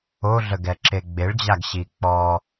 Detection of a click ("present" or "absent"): present